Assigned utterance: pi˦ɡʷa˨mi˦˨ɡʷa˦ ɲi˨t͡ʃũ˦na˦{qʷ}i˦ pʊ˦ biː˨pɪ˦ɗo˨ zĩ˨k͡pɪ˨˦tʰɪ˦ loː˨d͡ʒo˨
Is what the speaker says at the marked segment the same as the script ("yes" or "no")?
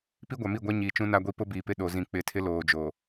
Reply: no